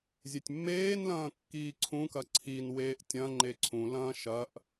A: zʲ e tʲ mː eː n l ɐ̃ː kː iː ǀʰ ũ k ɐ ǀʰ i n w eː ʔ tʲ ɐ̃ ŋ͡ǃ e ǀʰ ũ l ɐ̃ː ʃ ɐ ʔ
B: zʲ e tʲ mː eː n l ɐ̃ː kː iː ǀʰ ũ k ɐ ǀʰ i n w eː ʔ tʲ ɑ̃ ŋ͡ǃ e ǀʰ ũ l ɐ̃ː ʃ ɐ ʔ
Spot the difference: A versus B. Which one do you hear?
A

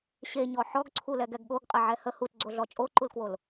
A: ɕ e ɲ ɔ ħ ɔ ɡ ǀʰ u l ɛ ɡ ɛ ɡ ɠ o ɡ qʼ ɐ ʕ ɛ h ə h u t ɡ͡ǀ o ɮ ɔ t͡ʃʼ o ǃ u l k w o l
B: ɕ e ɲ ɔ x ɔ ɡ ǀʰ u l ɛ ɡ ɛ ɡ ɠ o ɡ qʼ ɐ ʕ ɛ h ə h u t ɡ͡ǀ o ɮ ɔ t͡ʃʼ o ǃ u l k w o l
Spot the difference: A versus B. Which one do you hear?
A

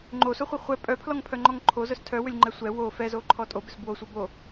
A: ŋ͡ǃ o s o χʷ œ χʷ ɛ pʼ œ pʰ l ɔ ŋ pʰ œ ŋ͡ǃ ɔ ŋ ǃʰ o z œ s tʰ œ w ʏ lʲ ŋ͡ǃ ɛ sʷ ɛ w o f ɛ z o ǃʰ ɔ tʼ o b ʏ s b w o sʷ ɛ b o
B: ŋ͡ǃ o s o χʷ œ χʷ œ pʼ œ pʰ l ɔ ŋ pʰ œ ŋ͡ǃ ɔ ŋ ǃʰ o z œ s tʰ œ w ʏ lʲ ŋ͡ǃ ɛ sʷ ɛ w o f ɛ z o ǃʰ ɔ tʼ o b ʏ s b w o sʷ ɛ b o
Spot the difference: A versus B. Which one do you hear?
A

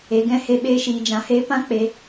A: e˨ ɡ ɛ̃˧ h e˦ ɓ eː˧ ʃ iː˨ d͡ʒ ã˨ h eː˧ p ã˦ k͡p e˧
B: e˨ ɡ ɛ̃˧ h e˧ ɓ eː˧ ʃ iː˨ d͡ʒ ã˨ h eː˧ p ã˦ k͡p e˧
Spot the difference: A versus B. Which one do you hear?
B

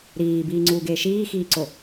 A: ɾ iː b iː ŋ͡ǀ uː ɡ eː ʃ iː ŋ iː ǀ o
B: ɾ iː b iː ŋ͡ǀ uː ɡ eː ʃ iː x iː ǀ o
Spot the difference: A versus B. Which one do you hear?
B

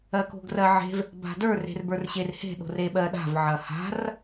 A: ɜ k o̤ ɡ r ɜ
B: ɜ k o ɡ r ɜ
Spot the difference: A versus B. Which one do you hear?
A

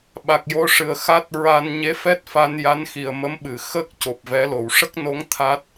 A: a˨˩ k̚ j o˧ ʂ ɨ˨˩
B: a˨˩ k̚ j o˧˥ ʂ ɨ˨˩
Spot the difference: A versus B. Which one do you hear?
A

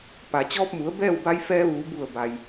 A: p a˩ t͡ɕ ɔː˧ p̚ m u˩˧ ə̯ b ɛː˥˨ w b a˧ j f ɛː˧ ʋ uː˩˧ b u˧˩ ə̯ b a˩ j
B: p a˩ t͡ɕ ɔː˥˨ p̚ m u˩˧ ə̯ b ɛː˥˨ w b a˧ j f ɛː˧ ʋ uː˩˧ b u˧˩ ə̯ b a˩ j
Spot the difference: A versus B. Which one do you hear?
A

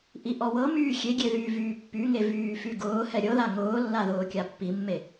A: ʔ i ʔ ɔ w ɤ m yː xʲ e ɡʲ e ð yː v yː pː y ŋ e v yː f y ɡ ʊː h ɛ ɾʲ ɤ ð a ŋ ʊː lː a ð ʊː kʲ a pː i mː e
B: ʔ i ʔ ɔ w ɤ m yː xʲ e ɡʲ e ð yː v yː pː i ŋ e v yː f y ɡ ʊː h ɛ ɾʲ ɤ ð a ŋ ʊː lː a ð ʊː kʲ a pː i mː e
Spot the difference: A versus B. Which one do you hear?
A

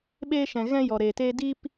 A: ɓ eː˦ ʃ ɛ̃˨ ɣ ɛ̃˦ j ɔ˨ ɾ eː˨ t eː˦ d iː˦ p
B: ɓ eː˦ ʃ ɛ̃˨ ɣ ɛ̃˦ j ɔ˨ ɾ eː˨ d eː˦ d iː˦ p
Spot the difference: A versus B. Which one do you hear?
A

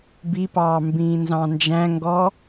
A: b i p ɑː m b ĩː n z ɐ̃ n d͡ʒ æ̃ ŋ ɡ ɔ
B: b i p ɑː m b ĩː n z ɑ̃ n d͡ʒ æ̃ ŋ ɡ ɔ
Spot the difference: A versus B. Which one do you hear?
B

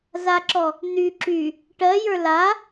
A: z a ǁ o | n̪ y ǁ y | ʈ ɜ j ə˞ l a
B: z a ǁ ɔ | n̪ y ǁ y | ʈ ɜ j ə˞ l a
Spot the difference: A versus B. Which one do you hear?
B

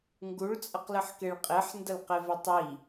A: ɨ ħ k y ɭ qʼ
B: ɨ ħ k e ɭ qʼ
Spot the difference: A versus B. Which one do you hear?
B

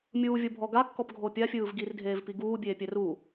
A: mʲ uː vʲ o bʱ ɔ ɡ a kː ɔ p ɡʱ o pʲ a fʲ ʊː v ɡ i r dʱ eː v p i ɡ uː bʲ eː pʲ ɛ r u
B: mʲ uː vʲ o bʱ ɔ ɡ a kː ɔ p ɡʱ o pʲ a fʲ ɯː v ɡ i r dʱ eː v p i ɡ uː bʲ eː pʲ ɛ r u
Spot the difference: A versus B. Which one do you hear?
B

